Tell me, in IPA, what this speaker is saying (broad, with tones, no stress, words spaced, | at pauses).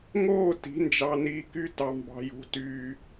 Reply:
ŋoː˥˨ ti̤˩˥nd͡ʒɑ˨niː˨ky˦ tɑ˨mbɑ̤˨jṳ˨ tyː˨